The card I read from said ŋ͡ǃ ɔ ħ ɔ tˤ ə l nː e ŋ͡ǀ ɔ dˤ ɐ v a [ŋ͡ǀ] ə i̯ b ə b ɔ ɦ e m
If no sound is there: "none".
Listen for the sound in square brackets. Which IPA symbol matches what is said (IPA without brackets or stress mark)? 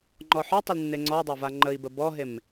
ŋ͡ǃ